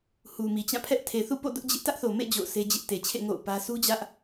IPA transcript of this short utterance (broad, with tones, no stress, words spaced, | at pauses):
hu˨mi˨t͡ɕã˦˨pʰɛ˦ʔ tʰe˨ θṵ˦˨po̰˦˨ dʊ˦ʔd͡ʑɪ˦ʔ tä˦ʔθo˨mḛ˦˨ d͡ʑo̰˦˨ʊ̯se˦d͡ʑɪ˦ʔ te˨t͡ɕʰḛ˦˨ ŋo̰˦˨ʊ̯pä˦ su˦d͡ʑä˦ʔ